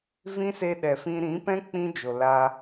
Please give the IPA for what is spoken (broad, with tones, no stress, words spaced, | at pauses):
vĩ˦se˧ɗɛ˨fĩ˧ ɾĩ˨˦pɛ̃˦ k͡pĩ˦ d͡ʒo˨la˧